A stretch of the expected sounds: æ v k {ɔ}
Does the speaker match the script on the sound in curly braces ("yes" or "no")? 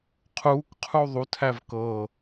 no